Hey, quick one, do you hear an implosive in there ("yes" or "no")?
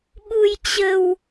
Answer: yes